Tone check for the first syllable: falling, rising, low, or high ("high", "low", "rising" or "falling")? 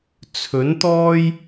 rising